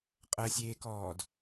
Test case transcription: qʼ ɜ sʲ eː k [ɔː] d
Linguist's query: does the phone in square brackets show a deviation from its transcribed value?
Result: no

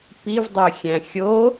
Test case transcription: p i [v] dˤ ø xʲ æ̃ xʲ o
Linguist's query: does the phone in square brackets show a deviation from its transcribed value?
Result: no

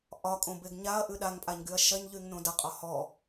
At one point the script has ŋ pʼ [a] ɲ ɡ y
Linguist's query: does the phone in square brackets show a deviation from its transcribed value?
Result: no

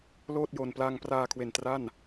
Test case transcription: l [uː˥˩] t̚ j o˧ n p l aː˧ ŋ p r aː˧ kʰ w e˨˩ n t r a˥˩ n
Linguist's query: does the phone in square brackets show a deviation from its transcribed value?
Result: yes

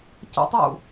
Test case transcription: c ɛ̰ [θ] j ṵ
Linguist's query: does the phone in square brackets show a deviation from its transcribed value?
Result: yes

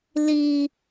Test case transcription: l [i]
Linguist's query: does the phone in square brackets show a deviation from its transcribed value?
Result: no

